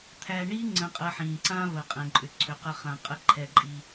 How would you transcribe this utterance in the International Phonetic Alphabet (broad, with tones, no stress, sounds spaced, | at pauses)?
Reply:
t̪ʰ æ˧ ɳ i˥ ŋ͡ǀ ə̃˧ qʼ ə˧ ħ ĩ˩ ǀ ã˥ v ə˩ qʼ ɛ̃˩ ǃʼ ʏ˩ ǀʰ ʏ˩ q ə˧ χ ã˩ qʼ ə˧ ǃʰ ɛ˩ ǃʼ i˩